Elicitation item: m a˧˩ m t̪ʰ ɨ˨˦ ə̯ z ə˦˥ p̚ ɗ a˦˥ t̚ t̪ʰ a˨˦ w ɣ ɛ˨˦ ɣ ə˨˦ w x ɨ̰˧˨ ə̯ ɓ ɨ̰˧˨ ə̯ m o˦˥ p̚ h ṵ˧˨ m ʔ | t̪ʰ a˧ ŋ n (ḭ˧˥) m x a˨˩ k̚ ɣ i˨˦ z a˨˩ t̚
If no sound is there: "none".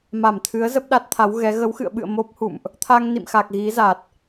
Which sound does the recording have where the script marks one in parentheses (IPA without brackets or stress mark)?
ḭ˧˨